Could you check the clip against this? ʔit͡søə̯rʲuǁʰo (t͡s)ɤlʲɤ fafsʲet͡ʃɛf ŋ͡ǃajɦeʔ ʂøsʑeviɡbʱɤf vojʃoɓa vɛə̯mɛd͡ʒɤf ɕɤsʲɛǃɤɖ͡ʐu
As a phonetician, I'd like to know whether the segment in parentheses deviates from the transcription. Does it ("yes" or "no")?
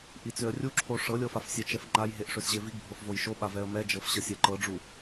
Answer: yes